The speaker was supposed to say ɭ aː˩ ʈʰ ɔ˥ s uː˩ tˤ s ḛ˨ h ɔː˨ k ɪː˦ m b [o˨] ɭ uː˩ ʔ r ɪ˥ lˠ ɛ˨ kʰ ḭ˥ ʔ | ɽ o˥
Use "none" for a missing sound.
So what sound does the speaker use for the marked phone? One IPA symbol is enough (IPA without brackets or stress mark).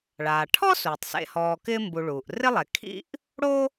u˨